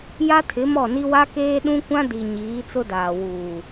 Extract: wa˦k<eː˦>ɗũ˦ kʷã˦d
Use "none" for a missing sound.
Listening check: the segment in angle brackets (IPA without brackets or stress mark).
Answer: eː˦